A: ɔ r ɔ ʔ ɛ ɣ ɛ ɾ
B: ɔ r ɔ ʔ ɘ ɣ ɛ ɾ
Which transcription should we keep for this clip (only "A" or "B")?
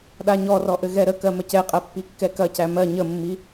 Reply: B